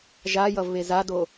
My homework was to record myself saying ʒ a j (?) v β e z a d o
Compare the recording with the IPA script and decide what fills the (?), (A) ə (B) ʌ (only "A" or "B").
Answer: B